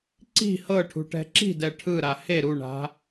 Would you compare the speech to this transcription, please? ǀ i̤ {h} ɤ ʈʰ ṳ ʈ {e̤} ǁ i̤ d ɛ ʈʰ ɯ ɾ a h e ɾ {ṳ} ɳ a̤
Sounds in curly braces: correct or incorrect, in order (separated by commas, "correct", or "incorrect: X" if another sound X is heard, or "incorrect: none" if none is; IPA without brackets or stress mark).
correct, incorrect: ɛ̤, incorrect: u